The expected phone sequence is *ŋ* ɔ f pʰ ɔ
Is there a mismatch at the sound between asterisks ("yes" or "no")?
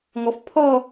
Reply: no